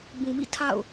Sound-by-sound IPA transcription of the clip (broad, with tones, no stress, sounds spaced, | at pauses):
b ũ˨ m ḭ˦˨ tʰ a̰˦˨ ʊ̯